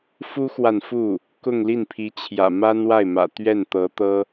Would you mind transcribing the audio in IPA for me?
f u˥ x w a˨ n f u˥˩ | k ʊ˥˧ ŋ l i˥˩ n pʰ i˧˥ t͡ɕʰ j ä̰˨˩ m a˥ n w a˥˩ ɪ̯ m ä̰˨˩ t̪ ɥ ɛ˥˩ n t̪ ɤ˧˥ t̪ ɤ˥

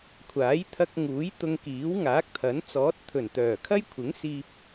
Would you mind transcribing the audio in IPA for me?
kʷʰ aː˨˥ j t̪ʰ ɐ˧ k̚ ŋ uː˨˥ j t̪ ʊ˧ ŋ k iː˨˥ w ŋ aː˨˥ k̚ t̪ʰ ɐ˨˥ n t͡s ɔː˨˥ t̚ t̪ʰ ɵ˨˩ n t̪ œː˨˩ kʰ ɐ˥ j kʷʰ ɪ˨˥ ŋ s iː˧ p̚

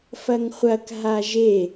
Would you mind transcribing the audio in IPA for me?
f ɐ ŋ χʷ ɐ k ɦ a ʒ e

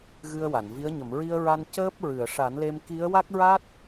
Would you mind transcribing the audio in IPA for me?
ɣ ɨ˧ ə̯ w a˨˩˨ n v i˧˥ ə̯ ɲ ə˨˩˨ m ɹ i˧ ə̯ ɹ a˧ n c əː˦˥ p̚ ɹ ɨ˨˩˨ ə̯ ʂ a˨˩˦ n l e˧ m k i˧˥ ə̯ w a˦˥ k̚ ɹ a˦˥ t̚

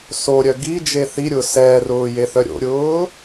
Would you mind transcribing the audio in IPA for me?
s o ɾʲ œ ɡ i d͡ʒ e θ i ɾʲ ʊː s ɛː r ʊː j e θ œ ɾʲ o̰ ɾʲ ʊː

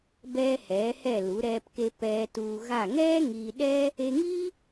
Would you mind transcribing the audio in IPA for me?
b ɛː˧ h ɛː˩˧ h ɛ˧˩ l u˩˧ ɾ ɛː˧ p k e˧ p ɛː˧ t uː˧ ɣ a˧˩ ŋ ɛː˥ ŋ iː˧ ɗ ɛː˥ | e˧ ŋ iː˥

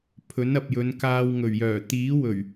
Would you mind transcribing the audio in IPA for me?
pʰ ɵ˨˥ n ɐ˨ p̚ j ɵ˨˧ n k aː˧ w ŋ ɵ˨˩ ɥ j œː˨˩ t̪ iː˨˥ w ɵ˨˩ ɥ

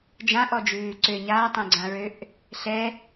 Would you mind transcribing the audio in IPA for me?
d͡ʒ ã ʔ ɔ d͡ʒ ʉː ǀ ø ɲ a tˤ ɛ̃ ɡ͡ǀ ã ɹ ø ʔ | ɬ ɛ

